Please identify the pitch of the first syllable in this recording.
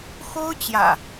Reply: high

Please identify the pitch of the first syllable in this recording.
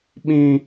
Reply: high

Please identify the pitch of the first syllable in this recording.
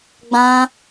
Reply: high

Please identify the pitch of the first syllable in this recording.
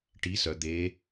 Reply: rising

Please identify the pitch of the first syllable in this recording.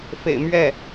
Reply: low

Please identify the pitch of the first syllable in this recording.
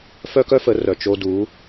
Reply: high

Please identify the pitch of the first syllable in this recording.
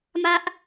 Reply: high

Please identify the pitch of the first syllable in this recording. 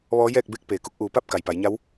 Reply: rising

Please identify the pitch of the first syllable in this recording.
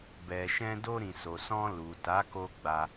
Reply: low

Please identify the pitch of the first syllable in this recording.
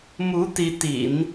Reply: rising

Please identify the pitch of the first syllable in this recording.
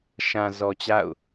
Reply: low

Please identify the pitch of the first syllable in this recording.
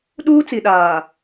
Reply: high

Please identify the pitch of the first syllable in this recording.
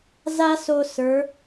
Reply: high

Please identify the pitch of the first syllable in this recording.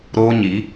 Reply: high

